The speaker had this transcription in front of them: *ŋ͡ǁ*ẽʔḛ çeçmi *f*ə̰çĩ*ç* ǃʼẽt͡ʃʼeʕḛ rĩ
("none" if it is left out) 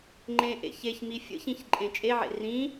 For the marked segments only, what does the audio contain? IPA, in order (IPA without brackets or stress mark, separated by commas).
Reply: ŋ͡ǃ, fʲ, ç